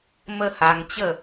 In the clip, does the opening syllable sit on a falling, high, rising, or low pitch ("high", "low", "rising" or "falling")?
high